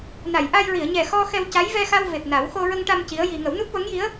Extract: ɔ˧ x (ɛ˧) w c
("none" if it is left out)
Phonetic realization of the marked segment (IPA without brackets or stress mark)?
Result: ɛ˧